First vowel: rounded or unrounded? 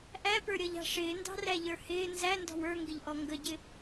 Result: unrounded